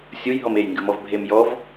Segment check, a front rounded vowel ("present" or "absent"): absent